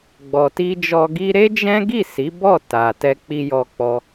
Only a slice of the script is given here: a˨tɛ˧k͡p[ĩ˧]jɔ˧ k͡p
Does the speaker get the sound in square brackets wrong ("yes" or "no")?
yes